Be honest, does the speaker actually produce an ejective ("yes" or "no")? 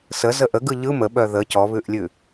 no